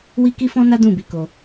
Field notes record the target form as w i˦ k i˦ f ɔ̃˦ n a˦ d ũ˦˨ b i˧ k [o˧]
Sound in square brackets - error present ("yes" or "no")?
no